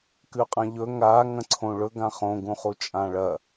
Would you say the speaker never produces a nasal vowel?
no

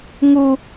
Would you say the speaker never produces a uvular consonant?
yes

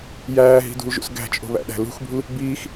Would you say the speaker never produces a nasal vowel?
yes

